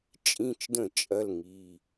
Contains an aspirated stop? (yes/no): no